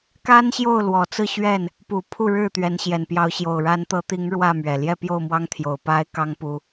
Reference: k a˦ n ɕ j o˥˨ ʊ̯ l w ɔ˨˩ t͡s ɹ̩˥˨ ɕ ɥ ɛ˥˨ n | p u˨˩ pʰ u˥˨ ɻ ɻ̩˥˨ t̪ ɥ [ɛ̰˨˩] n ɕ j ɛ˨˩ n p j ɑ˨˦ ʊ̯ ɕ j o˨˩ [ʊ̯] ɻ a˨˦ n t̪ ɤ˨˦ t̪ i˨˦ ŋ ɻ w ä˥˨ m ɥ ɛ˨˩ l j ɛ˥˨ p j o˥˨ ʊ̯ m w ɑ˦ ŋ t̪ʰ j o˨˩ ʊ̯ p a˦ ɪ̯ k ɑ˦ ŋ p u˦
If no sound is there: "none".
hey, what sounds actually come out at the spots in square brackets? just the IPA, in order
ɛ˨˦, ʊ̯

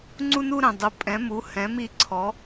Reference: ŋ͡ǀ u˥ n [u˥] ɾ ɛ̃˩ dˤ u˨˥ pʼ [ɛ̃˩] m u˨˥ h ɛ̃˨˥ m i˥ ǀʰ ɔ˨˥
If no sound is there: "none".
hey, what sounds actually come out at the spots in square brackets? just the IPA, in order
u˥, ɛ̃˨˥

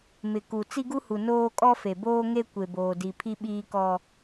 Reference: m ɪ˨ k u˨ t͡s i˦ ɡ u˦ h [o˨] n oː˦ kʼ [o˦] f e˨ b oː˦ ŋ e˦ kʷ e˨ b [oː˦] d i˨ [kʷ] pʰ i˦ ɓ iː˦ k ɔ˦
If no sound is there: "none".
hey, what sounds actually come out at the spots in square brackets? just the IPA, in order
u˨, ɔ˦, oː˨, none

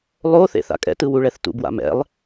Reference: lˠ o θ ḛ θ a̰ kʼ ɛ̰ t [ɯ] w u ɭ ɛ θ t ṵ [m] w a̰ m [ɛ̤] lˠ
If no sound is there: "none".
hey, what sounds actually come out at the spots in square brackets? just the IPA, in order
ɯ, b, ɛ̰

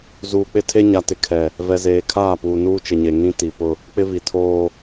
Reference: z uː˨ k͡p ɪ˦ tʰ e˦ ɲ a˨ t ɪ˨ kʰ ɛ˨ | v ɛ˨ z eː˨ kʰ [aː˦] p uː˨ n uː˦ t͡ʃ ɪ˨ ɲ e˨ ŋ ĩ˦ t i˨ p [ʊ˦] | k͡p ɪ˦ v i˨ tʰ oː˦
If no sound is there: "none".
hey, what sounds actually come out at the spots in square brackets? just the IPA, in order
aː˦˨, ʊ˦

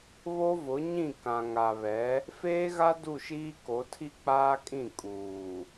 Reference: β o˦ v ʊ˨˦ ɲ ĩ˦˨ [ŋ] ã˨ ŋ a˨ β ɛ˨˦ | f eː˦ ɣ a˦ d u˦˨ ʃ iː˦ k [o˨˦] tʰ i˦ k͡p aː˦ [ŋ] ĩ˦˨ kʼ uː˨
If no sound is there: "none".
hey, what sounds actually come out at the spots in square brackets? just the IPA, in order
k, o˨˦, kʼ

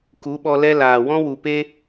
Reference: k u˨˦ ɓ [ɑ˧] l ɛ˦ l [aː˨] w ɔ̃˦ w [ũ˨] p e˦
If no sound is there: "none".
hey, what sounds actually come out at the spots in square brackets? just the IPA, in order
ɔ˧, aː˨, u˨

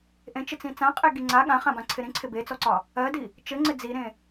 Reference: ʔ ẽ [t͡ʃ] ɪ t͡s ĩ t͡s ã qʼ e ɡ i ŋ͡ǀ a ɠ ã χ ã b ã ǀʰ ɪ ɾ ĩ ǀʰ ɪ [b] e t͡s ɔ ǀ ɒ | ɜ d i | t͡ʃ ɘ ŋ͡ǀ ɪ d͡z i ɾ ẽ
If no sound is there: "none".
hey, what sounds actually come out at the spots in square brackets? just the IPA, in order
t͡ʃ, b

